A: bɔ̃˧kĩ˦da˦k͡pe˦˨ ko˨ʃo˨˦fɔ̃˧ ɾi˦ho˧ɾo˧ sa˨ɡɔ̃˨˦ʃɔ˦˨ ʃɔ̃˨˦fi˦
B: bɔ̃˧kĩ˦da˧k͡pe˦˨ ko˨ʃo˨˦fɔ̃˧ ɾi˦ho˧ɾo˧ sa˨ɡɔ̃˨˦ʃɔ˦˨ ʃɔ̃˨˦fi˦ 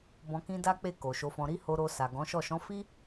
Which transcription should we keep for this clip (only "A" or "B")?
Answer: A